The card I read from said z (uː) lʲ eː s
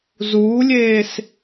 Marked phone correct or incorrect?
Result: correct